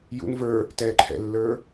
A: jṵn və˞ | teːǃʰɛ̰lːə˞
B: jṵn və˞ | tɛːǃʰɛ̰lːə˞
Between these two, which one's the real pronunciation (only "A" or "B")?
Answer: B